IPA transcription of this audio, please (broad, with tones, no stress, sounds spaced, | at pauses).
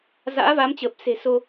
z a̰ː˧˥ v a˨˦ m t͡ɕ əː˨˩ p̚ s e̤˨˩ s o˧